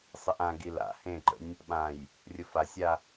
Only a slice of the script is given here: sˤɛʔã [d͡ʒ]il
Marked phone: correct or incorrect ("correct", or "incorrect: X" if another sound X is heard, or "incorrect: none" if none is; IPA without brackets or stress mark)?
incorrect: ɡ